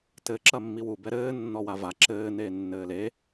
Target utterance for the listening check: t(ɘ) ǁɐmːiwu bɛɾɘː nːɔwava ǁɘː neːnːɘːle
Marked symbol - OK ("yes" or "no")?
yes